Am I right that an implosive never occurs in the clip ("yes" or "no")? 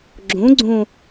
yes